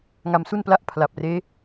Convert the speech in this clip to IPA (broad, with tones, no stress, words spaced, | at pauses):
ŋa˧msu˥˩npla˥˩ʔ pʰla˨˩p̚reː˦˥